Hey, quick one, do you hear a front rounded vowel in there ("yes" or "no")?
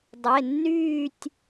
yes